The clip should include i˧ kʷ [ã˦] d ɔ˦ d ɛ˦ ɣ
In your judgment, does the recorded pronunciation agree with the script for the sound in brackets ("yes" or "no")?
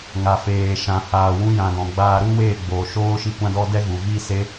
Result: yes